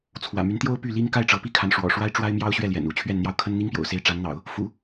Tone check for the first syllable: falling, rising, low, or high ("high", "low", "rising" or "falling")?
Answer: low